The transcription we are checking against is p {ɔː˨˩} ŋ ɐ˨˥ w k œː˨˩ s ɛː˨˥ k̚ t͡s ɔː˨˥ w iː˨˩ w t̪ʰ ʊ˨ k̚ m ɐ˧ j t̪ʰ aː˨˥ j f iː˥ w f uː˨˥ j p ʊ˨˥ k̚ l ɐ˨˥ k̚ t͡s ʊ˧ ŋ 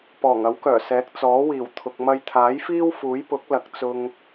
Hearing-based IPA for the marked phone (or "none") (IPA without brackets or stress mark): ɔː˨˩